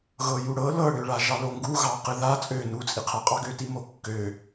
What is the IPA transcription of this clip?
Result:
ɣ ɤ j u ɽ ɤ l ɤ ɽ ø ɭ a ʒ ɑ l o ŋ ɡ u ɣ ɑ q ɨ ð a t͡sʼ ø n u t͡sʼ i qʰ a qʼ ɑ ɡ ø t i m o kː ø

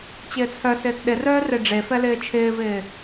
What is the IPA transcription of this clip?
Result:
t͡ɕ ɪː t͡sʰ œ s ɪː t ɗ ɪ r œː r e ɖ͡ʐ e f ɛ l ɪː t͡ʃʰ ɪː v ɪː

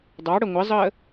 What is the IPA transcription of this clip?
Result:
dˤ ɑ ɽ ə ŋʷ ɪ zˤ əː

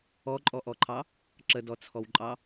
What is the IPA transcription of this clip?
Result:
ɔ ǃʼ ɔ ʔ ɔ ǃʰ ɑ | ǁ ə d ɔ t͡sʰ ɔ w ǃʼ ɑ

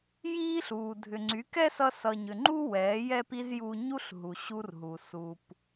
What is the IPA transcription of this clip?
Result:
j iː˦ ɬ uː˨ dʱ ʏ˨ ŋ͡ǀ y˨˦ k ɛ˦ s ʌ˧ s ʌː˨ ɲ ʏ˨ ŋ͡ǃ u˦ w ɛː˨˦ j ɛː˦ p i˦ z j u˧ ɲ u˦ ɬ ɦ u˨ ɕ u˧ r ɦ u˨ s uː˨ p

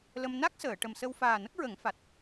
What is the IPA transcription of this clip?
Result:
l ə˧ m n a˦˥ k̚ s əː˨˩˨ ʈ ə˨˩ m s ə˧ w f aː˨˩ n ə˦˥ k̚ ɹ ə˨˩˦ ŋ f a˨˩ t̚

